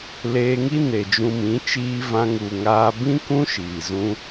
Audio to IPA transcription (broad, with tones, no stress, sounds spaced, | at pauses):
l eː˧ ŋ i˦ n e˨ d͡ʒ ũ˧ m ĩ˨˦ t͡ʃ iː˧ v ã˧ ŋ u˨ ŋ aː˧ b ĩ˦ k ũ˦ ʃ iː˨ z ũ˧